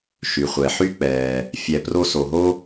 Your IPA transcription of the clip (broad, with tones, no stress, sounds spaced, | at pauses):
ʃ y˩ χʷ ɛ˩ ħ y˥ k͡p ɛː˨ | fʲ ɛ˨ p r o˦ s o˨ ɦ o˥